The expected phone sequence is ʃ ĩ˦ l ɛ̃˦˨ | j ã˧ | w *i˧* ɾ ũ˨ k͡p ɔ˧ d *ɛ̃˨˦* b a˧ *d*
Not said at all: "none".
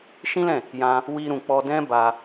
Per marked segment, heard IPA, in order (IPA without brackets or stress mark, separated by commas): i˧, ɛ̃˦, none